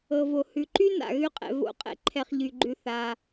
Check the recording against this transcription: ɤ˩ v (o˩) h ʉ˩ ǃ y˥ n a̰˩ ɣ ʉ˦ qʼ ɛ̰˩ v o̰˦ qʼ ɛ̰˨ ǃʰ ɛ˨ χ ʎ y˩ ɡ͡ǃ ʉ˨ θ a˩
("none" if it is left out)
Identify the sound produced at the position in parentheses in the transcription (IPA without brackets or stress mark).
o˩